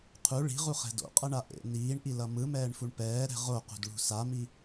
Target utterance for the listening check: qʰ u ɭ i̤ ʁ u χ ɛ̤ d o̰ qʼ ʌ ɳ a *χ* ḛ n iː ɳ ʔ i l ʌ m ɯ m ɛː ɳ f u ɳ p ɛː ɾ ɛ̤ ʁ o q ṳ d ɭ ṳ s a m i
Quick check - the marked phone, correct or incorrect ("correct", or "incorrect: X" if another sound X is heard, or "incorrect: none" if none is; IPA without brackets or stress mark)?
incorrect: ʔ